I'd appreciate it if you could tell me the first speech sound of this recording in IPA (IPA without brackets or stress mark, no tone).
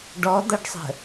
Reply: ɖ